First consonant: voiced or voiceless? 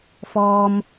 voiceless